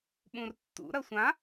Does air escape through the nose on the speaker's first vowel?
yes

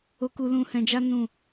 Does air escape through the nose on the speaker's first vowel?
no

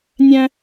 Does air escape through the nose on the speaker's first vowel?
yes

